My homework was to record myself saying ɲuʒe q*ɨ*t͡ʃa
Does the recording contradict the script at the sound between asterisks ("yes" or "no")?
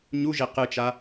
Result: no